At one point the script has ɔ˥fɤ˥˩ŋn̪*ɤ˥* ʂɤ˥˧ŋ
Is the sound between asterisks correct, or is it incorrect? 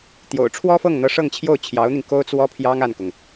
incorrect